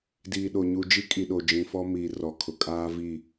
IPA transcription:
d iː˨ ɗ o˨ ɲ u˨ d͡ʒ i˦ kʼ i˨ ɗ o˨ d͡ʒ ĩ˨ f ɔ˦ m iː˨ r ɔ˨ kʰ ʊ˨ kʼ aː˦ v i˦˨

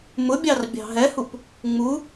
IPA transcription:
m ʊ bʲ ɑ r bʲ ɑ̤ ɦ ɛ h u p | ŋ͡m u

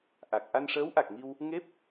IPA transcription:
ʔ a˨˩ k̚ ʔ a˧ n ʂ əː˧˥ w ʔ a˨˩ k̚ ŋ i˧ w | ŋ e˦˥ p̚

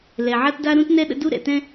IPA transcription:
l ɛ˩ ʕ a˥ t d a˥ ɾ ũ˥ t n ɛ˥ ɗ ə̰˥ d u˥ ɾ ɛ̰˩ t ɛ̃˥

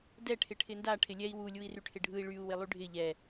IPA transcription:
d ɛ ʈʰ ɪ ʈʰ ɪ n d a ʈʰ ɪ lʲ ɛ i̯ w u lʲ u i̯ r y ʈʰ ɪ ɖʱ ɯ i̯ ɭ y u̯ w ɪ lˠ y ɖʱ ɪ ʎ ɛ

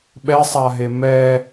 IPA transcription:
ɓ ɛ sˤ a ɦ e m ɛ

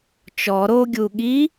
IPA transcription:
t͡ʃ ɔ ɾ o ɡʲ u ɠ i

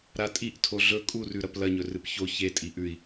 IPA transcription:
ɾ a tʼ i ʔ tʰ o ɮ ɵ kʼ u r ʉ ɾ ɐ p l ɐ ɲ ɵ r ɨ p ç o ç e tʼ i ʔ ʉ i̯

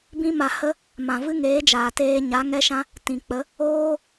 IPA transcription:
b ĩ˦ m a˧ h ə˦ | m ã˨ v ɨ˦ ŋ eː˨˦ d͡ʒ aː˨ t eː˦ ɲ a˨˦ ŋ ɛ˦ ʃ ã˦ | t ĩ˨ k͡p ə˨˦ | oː˦

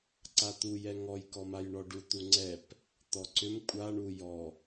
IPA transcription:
ǀ a t̪ u j ɛ ŋ ɔ j k ɔ m a j ɳ ɔ ɖ u t̪ u ŋ͡ǀ ɛ p | t̪ ɔ ǀ ʏ m kʷʼ a ɳ u j ɔ

